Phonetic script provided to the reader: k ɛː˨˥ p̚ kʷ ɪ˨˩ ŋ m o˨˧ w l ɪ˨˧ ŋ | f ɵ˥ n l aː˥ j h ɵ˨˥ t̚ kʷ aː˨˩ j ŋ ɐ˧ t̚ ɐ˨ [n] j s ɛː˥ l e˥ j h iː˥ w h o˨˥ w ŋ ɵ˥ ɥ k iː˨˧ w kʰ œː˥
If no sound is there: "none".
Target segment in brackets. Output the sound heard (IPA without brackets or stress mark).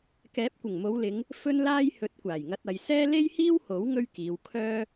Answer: none